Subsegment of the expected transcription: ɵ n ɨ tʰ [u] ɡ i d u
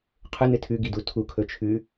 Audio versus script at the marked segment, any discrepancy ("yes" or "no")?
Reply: yes